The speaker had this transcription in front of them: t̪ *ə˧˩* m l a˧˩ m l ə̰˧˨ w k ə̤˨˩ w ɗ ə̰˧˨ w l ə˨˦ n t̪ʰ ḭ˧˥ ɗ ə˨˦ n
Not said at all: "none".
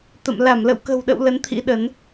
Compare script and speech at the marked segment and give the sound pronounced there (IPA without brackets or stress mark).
ə̰˧˨